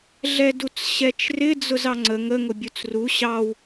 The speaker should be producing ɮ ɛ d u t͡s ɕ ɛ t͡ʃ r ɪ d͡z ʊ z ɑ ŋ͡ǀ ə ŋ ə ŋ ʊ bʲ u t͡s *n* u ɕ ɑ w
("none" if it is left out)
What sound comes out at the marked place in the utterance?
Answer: r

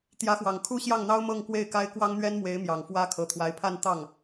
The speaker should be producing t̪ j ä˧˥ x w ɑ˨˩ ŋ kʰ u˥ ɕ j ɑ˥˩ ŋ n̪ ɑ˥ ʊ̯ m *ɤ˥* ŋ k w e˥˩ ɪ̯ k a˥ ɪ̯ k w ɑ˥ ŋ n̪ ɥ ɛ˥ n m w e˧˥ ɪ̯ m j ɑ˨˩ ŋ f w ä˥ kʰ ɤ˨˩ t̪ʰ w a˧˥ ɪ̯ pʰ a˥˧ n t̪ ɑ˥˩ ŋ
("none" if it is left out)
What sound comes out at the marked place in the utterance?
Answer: ɤ˥˧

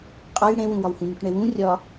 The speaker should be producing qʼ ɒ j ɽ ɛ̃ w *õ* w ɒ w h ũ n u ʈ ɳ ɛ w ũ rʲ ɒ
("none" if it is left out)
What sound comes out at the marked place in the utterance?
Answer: ũ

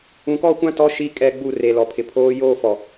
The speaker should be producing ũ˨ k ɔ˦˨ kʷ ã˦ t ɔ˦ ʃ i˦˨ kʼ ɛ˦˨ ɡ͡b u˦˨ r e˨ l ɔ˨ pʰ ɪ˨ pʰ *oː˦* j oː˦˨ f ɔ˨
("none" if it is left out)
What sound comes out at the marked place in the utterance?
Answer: oː˦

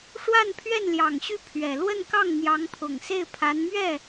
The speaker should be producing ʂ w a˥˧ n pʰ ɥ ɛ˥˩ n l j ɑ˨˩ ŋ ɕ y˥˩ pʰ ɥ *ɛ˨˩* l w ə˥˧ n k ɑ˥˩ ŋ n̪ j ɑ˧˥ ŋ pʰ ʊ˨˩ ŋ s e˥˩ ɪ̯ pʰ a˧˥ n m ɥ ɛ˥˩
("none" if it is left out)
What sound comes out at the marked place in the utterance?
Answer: ɛ˨˩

